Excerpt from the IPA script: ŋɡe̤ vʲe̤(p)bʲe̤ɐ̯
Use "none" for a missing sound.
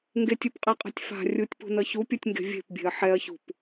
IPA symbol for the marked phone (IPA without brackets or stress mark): p